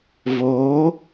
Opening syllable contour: rising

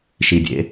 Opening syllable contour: low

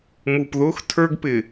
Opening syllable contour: low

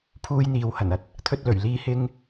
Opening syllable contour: high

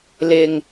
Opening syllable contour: low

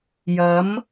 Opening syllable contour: rising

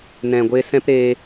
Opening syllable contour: low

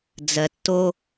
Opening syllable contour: low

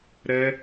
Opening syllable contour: high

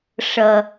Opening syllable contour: low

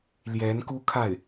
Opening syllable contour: rising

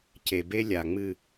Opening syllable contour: low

